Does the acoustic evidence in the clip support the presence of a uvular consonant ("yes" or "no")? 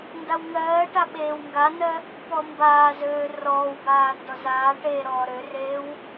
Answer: no